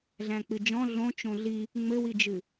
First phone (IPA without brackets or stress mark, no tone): ɮ